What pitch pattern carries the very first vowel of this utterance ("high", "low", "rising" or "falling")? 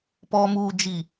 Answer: low